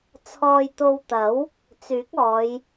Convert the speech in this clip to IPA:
t͡sʰɔː˧jt̪o˧wt̪ɐ˨˥w | t͡syː˨˥k̚ɔː˨˧j

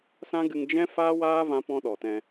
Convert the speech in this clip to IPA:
sã˦ɡɨ˧ŋ d͡ʒɛ̃˦ fa˦waː˦ vã˦pɔ̃˦ɗɔ˨tɛ̃˧

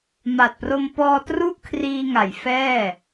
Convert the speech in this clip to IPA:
ma˨˩t̚pro˧mpɔː˧tru˥˩ʔ kʰriː˧ŋa˩˦jfɛː˥˩

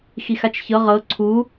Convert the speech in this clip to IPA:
xixat͡ʃçɤ ʁɤ ǀʰu

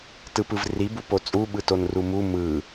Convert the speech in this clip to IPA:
tɯpɯvri bupot͡sʼu ɓɯtonrumu mɯ

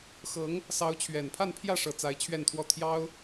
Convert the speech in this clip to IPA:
xɤ˧˥ŋ | sɑ˧˥ʊ̯t͡ɕʰɥɛ˨˩npʰa˥˧npʰjä˥˧ ʂɤ˥˩t͡sa˥ɪ̯ t͡ɕʰɥɛ˥˧nt̪ʰwɔ˥˩ t̪ʰjɑ˥ʊ̯

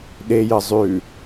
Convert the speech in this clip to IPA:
ɗejə zˤʉ

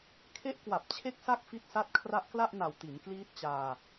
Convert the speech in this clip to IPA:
kʰe˦˥ʔkwa˨˩p̚t͡ɕʰe˦˥k̚sa˦˥k̚ fi˦˥t̚sa˦˥t̚ kʰra˦˥ʔkla˥˩ʔna˨˩w ti˩˦nkliː˦˥t̚t͡ɕaː˧

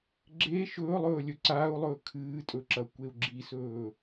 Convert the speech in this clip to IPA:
ɡ͡ǁe ʃɵːlˠɵːlʲɵ ǀaːu̯lˠɵː kʰɨːtʼɵǁɐ kʷeu̯ɡ͡ǁisɵː

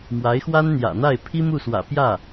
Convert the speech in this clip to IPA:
mwa˧˥ɪ̯xwa˥nn̪jä̰˨˩n̪a˥˩ɪ̯ pʰi˥ mu˥˩swä̰˨˩ pjä˥˩

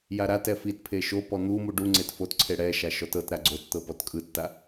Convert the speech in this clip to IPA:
jaɾatɛ fitpʰe ʃo pɔn̪umu ɖuŋ͡ǀet fotǀʰe ɽɛʃa ʃɔtɤtɾa ɡ͡ǀott̪ɤ pɔtkʼɯtːa

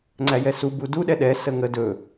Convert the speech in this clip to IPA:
ŋ͡ǀæjɛsu budu ɗɛɗɛ səŋə dɵ

